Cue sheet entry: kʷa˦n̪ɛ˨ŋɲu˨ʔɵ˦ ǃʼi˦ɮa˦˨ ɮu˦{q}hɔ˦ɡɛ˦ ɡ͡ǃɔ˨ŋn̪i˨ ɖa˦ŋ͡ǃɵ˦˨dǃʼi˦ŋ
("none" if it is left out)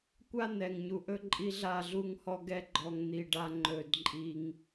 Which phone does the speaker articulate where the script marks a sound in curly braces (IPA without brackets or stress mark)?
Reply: ŋ